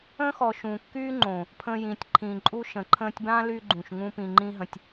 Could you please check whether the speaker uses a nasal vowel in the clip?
yes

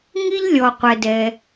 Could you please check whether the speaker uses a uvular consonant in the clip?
yes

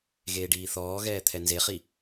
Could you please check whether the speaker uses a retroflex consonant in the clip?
yes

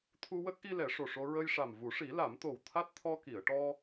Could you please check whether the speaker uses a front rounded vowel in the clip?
no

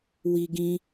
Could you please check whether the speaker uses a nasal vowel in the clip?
yes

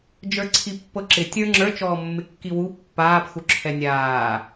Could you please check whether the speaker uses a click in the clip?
yes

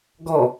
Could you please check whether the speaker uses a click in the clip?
no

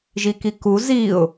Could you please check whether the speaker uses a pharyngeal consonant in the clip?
no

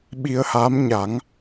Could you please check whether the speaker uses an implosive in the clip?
yes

